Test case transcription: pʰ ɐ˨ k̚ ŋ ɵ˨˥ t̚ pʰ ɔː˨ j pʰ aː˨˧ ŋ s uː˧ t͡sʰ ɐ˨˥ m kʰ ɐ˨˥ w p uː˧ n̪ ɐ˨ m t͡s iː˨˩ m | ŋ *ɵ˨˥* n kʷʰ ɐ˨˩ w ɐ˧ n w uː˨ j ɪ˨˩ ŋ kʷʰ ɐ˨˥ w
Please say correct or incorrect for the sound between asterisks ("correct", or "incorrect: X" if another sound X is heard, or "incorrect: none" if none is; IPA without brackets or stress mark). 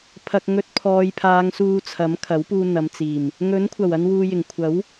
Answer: correct